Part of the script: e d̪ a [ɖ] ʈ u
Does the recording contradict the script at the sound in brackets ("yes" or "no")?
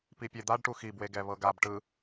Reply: no